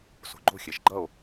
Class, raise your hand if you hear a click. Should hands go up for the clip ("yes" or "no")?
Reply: yes